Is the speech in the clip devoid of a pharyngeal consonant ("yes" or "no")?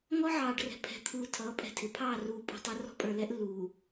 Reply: no